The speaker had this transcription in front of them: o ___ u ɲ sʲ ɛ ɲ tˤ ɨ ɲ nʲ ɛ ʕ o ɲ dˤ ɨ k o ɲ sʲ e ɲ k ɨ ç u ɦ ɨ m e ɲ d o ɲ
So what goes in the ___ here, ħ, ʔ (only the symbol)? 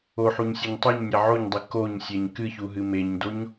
ħ